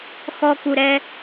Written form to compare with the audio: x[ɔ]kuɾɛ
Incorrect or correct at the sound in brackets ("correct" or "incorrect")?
correct